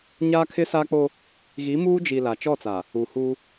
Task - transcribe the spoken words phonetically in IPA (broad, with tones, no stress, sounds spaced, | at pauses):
ɲ aː˦ kʰ ɪ˦ s aː˦ k͡p o˦ | ɣ i˨˦ m uː˦ d͡ʒ i˨ l a˨ t͡ʃ ɔ˦˨ t͡s aː˨ | u˨ h u˦